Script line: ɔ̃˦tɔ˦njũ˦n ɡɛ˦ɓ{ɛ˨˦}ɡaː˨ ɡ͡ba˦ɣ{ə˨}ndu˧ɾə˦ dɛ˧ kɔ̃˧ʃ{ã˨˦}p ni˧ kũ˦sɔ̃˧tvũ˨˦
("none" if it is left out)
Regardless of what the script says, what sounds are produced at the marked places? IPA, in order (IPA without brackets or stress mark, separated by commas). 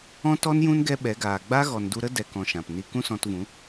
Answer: ɛ˨˦, ɔ˨, ã˨